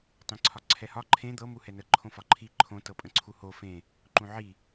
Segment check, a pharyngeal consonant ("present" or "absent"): present